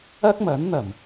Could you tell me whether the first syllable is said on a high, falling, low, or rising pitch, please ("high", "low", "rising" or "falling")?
high